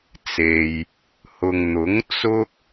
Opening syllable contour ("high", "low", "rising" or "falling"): low